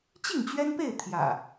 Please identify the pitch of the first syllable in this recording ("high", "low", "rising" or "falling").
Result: falling